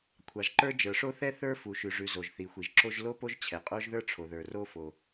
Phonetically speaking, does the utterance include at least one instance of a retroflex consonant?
yes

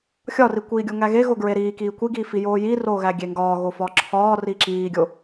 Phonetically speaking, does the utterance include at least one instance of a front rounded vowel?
no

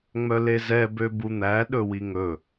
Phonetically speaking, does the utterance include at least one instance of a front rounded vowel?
yes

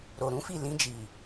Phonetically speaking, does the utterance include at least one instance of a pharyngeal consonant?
no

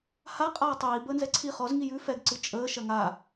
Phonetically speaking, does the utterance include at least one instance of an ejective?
yes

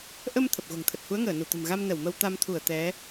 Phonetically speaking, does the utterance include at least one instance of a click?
no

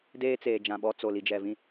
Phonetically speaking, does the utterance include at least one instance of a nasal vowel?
yes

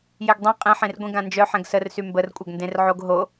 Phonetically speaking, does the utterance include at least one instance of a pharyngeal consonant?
yes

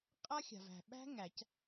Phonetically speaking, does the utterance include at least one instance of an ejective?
yes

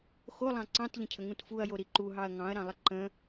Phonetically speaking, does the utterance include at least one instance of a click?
yes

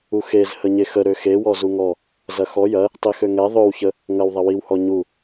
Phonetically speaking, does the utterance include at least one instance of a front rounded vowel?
yes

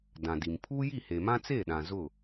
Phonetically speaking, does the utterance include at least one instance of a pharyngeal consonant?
no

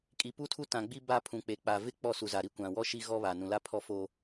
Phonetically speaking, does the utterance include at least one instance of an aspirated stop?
yes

